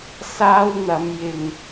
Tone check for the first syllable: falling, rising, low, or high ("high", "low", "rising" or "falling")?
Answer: high